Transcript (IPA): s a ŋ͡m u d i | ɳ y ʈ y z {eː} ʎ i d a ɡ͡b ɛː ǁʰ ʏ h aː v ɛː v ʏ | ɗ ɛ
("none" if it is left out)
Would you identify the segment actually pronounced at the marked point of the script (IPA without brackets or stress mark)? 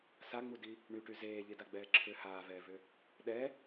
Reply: eː